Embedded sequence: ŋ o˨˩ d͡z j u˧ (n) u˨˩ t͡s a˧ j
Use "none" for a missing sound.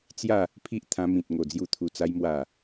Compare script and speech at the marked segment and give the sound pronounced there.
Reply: t̪ʰ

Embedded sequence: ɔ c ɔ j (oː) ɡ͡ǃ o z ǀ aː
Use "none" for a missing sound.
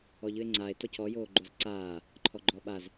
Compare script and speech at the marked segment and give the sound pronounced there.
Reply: oː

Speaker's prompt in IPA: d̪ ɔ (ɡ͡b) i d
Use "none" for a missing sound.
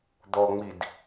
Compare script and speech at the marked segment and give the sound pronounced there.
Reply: ŋ͡m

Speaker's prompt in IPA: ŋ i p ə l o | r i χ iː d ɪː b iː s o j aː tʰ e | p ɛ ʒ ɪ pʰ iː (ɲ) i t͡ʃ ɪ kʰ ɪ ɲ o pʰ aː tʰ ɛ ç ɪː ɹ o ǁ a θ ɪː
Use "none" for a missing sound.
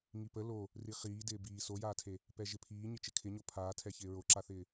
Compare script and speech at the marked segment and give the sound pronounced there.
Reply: ɲ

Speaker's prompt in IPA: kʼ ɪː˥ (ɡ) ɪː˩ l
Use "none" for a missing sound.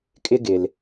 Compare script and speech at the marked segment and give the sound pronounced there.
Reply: ɡ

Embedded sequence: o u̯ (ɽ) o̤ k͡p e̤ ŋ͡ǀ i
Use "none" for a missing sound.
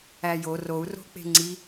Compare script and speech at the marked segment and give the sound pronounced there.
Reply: r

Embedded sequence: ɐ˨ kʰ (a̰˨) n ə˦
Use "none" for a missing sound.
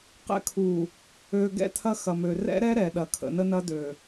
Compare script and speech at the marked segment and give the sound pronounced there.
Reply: ə̰˨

